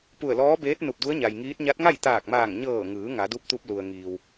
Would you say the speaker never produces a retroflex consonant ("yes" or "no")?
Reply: yes